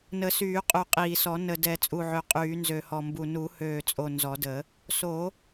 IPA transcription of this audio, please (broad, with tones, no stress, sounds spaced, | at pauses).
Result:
n ə˨˩˦ s yː˨˩˦ qʼ u˨˩ qʼ iː˨˩ s ɔ˨˩˦ n ə˨˩ d ɛ˨˩˦ t͡sʼ u˨˩ ʕ ø˨˩ qʼ yː˨˩˦ n z ø˨˩ h ɔ˨˩ m b u˨˩ n u˨˩˦ h øː˨˩ t͡sʼ o˨˩ n z ɔ˨˩˦ d ə˨˩˦ | s o˨˩˦